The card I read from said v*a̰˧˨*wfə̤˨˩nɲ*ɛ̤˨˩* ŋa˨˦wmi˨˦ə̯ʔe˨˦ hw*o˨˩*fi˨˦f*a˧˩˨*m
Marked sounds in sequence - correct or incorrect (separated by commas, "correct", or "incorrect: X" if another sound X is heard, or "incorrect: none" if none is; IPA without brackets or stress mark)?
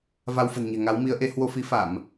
incorrect: a˧, correct, incorrect: o˧, correct